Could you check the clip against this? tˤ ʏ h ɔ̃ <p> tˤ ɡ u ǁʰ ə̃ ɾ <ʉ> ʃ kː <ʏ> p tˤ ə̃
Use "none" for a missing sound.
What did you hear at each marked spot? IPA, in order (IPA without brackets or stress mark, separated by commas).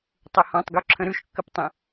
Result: none, ʉ, ə